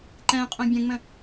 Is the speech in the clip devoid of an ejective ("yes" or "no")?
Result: no